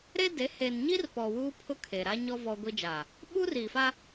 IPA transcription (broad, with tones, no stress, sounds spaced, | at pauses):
ɾ e˦ d e˨˦ h e˨ n ɲ i˦ r p ɔ˨ w uː˦ pʰ ʊ˦ kʰ e˨ ɾ a˦ ɲ ɔ˦ v ɔ˦ ɡʷ i˦ d͡ʒ a˨ | ɓ uː˦ r iː˨ f a˦